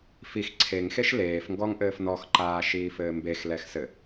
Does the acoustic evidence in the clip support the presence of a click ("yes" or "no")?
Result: yes